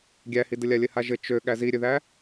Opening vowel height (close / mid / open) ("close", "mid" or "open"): open